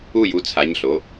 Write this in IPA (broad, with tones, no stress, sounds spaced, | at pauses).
u˥˨ j u˧˥ t͡sʰ a˩˧˩ ɲ ɬ o˩˧˩